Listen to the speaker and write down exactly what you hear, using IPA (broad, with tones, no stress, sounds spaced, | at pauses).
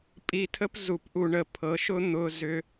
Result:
pʼ i˧ tʰ ə˦ p z u˨ p ʔ u˨ ɳ ə˨ pʰ ɤ˨˦ ʃ ʊ˦ n̪ ʊ˧ z ʏ˧